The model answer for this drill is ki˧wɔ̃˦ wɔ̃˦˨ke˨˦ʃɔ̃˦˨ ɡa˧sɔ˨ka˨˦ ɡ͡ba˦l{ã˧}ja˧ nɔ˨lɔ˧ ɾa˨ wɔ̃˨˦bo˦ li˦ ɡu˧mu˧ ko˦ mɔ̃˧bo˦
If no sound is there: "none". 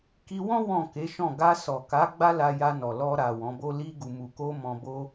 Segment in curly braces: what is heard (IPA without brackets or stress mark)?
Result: a˧